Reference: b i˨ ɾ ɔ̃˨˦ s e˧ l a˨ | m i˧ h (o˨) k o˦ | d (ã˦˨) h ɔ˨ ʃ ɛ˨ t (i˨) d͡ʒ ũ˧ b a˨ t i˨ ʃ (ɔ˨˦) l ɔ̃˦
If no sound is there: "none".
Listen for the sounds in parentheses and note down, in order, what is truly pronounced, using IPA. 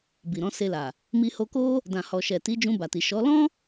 o˧, ã˨, i˨˦, ɔ˨˦

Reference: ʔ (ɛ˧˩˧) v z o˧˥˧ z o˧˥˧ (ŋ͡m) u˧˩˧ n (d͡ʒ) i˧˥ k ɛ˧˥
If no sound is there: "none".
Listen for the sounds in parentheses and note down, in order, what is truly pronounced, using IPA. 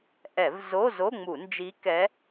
ɛ˧˩˧, ŋ͡m, d͡ʒ

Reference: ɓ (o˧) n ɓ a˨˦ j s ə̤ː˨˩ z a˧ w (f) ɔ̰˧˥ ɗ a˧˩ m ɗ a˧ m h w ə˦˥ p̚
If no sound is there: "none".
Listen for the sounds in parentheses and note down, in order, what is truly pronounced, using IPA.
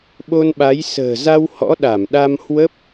o˧, h

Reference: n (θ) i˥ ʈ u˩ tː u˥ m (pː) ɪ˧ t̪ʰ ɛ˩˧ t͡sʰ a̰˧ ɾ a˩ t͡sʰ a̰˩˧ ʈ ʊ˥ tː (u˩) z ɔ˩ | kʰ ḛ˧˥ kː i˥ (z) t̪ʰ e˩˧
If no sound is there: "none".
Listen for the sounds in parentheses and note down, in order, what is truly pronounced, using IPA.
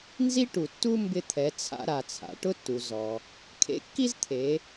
z, b, u˩, z

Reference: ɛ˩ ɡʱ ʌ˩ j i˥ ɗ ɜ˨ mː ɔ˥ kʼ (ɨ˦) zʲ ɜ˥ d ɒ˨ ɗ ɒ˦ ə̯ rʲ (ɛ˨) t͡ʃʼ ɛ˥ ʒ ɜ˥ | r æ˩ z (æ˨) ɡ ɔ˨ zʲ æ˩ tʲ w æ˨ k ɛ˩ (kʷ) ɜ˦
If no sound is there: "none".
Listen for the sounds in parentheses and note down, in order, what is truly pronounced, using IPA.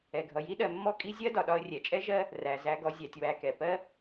i˦, ɛ˩, æ˨, p

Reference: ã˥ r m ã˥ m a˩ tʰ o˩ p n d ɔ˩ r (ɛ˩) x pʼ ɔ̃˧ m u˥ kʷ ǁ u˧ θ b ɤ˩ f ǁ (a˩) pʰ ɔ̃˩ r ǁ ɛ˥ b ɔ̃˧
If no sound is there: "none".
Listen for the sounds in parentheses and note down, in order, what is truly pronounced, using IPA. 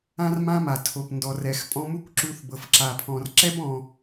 ɛ˩, a˩

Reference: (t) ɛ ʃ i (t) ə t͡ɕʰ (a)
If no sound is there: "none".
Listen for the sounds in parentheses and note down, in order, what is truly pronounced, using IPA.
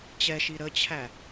t͡ɕ, ɾ, æ

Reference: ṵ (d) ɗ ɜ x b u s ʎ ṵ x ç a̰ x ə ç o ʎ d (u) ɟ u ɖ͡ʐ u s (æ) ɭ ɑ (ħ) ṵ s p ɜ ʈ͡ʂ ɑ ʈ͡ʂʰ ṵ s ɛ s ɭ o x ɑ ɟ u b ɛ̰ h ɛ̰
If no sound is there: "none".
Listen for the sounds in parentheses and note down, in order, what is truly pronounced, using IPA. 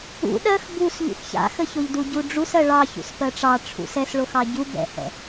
none, u, ɜ, ç

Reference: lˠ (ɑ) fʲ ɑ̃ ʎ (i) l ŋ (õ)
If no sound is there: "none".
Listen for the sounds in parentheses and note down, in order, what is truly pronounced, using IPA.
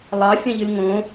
ɑ, ɨ, õ

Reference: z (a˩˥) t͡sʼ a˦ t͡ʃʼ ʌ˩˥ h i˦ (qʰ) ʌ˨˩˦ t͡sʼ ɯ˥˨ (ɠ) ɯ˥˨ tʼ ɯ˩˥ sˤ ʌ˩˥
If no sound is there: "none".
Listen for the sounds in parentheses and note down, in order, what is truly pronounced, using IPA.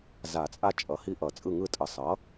a˨˩˦, ʔ, ŋ

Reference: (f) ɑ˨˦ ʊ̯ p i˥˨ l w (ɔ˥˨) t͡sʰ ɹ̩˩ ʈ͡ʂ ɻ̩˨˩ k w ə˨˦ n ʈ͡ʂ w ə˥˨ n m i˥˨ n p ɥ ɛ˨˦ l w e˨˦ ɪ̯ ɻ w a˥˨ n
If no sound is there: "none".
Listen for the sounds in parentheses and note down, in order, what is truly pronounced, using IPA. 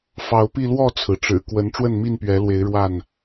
f, ɔ˥˨

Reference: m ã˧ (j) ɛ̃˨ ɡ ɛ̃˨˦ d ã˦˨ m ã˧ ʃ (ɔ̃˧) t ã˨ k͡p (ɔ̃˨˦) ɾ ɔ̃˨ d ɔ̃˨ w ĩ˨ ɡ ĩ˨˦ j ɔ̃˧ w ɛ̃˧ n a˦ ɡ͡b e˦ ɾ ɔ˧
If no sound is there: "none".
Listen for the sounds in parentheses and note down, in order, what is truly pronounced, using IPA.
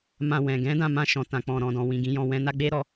w, ɔ̃˨, ɔ̃˨

